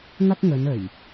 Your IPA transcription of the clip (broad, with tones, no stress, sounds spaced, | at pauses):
ŋ ɐ˥ k̚ ŋ ɵ˨˧ n ɵ˨˩ ɥ